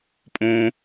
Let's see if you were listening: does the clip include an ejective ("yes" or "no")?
yes